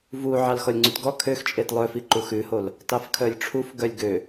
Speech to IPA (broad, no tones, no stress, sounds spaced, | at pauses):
v u ʕ ɑ l x ɔ lʲ ŋ͡ǀ ʉ t ɡ ɔ kʰ ø x t͡ʃʼ e t lˠ œ f i ǃ u x ʉ h o l | t ɑ f kʰ œ lʲ ʈ͡ʂʰ u f ɡ œ lʲ ɡ ø